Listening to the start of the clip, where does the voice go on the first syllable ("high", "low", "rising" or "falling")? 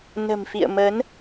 low